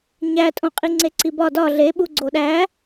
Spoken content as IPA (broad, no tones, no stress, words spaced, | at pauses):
ɲætʼõ qʼiŋ͡ǀeǀibɒ dɒ ɮeɓu ɡ͡ǀoɗæ